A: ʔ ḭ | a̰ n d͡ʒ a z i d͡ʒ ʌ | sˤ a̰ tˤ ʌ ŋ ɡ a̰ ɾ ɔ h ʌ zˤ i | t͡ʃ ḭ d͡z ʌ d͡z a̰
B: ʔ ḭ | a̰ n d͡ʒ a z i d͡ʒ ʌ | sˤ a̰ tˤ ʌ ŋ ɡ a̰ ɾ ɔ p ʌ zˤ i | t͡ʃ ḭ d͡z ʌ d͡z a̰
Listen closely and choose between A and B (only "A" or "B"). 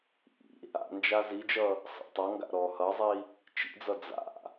A